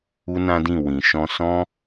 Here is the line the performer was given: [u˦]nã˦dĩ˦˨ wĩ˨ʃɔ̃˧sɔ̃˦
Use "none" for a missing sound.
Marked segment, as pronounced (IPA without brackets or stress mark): u˦